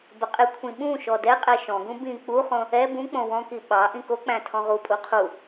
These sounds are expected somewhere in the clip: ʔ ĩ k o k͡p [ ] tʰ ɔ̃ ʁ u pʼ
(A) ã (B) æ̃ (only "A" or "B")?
B